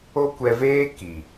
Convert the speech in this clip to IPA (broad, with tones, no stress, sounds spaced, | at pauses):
o˦ kʷ ɛ˧ v eː˦ k i˨